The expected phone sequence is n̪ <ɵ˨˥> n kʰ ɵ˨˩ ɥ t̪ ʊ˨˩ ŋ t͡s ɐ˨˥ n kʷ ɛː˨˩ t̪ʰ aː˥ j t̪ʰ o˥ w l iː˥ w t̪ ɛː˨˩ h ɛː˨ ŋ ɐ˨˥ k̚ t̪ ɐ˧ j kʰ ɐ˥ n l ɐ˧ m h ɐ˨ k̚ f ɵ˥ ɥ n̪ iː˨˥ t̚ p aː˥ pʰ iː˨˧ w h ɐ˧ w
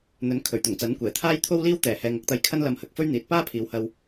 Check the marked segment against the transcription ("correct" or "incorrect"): correct